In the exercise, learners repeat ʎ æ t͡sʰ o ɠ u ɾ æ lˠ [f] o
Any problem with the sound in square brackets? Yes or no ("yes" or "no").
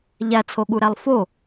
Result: no